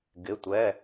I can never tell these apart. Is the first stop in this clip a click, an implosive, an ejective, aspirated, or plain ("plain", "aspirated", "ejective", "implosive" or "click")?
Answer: plain